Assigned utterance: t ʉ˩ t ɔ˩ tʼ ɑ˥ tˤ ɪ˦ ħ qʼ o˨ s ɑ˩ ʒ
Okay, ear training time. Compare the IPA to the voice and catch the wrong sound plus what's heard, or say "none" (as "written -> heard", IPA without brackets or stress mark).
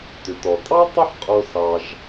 none